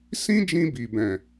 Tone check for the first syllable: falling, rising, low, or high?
high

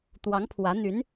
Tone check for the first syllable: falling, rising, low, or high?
rising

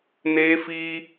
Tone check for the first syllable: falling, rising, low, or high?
high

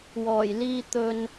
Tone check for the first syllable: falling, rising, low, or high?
low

